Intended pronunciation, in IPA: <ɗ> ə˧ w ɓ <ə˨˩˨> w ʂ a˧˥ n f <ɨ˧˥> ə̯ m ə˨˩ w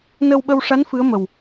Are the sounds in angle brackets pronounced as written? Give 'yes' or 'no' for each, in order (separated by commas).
no, no, yes